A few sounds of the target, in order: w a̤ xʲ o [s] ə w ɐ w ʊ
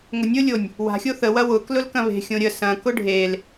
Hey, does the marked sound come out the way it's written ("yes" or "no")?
no